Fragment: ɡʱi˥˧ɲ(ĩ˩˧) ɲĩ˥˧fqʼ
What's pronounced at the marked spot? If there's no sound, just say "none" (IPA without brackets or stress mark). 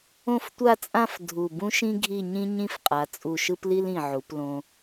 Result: ĩ˥